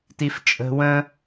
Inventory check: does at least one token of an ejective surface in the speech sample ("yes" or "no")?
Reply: yes